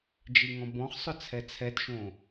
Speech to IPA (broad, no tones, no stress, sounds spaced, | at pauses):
d͡ʒ i ŋ ɔ̃ b ɔ̃ χ sˤ ʊ t͡sʰ ɛ t͡sʰ ɛ t ʃ õ